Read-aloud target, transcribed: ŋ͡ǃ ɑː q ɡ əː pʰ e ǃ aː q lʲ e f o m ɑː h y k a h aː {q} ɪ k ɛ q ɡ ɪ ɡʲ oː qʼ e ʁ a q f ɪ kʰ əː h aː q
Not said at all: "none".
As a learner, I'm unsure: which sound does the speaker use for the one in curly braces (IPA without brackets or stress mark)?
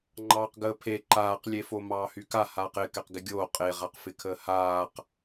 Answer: q